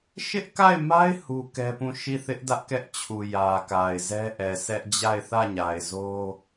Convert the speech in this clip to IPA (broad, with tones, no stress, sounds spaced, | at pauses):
ʃ ɪ˦ ʔ k a˦˨ ɪ̯ m a˦ ɪ̯ h u˦ k ɛ˦ p ũ˦˨ ʃ i˦˨ θ ɪ˦ ʔ d ä˦ ʔ k ɛ˦ ʔ t͡ɕʰ u˨ j ä˨ k a˨ ɪ̯ z ɛ˦ ʔ ɛ˨ s ɛ˦ ʔ d͡ʑ a˦˨ ɪ̯ θ ä˦˨ ɲ a˨ ɪ̯ z o˦